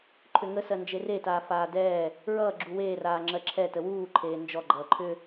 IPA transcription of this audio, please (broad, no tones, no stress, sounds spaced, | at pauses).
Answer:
ǃʰ ʏ ŋ ə s ɜ n d͡ʒ e r e t aː f aː d ɛː | ɹ ʌː ɡ͡ǁ u w eː r aː ŋ͡ǁ ɜ ǁʰ ɛ t ə w uː ǃʰ eː n d͡ʒ ɔ ɡ͡ǃ ʌː ǃʰ ʏ